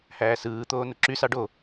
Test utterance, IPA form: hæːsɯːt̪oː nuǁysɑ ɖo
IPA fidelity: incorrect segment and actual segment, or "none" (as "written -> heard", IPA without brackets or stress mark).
none